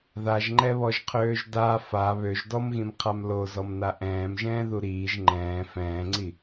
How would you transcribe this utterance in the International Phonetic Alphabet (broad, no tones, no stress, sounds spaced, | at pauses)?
ð a ʒ ŋ͡ǃ ɛ β ɔ ʒ qʰ øː ʒ d a f a β ø ʒ d ɔ m ɣ ĩ m qʰ a m l o z ɔ m n a ʔ ɛ̃ː m ʒ ɛ̃ː ð u ɾ iː ʒ ŋ͡ǃ ɛ̃ː f ɛ̃ː ŋ͡ǀ i